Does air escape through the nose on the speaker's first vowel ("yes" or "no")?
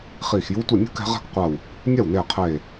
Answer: no